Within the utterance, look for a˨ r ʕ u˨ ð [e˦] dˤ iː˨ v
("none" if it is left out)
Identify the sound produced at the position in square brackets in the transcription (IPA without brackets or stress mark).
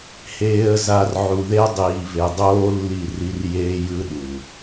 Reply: e˦